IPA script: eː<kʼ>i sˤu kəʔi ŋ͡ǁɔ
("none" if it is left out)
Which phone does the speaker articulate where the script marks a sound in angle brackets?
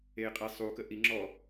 qʼ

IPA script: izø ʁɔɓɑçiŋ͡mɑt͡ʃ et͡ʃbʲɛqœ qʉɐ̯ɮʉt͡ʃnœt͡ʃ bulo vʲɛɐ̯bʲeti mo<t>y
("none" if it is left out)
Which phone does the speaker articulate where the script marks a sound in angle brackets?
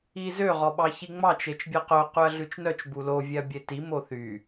θ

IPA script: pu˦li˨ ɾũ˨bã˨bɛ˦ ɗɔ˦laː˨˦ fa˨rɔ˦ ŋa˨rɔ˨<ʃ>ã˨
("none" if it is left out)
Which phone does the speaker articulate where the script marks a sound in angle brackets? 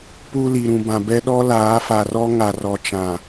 t͡ʃ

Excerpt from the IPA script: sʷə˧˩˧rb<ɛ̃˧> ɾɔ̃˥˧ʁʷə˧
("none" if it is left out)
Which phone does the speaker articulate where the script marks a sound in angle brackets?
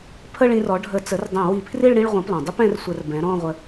ɛ̃˩˥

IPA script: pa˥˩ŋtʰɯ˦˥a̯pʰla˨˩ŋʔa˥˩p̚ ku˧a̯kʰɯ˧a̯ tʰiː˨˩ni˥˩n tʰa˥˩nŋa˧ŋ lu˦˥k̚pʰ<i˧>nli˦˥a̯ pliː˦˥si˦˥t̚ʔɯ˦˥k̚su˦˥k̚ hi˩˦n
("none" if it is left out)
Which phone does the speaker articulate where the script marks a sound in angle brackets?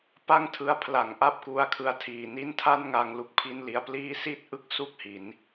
i˥˩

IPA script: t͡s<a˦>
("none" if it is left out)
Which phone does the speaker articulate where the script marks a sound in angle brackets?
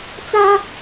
a˦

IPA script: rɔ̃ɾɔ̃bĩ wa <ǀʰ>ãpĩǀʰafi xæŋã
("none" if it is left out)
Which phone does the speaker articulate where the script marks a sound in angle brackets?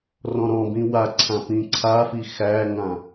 ǀʰ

